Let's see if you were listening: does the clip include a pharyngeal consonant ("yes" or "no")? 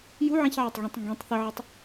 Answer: yes